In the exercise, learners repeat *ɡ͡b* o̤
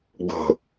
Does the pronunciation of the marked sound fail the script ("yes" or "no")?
no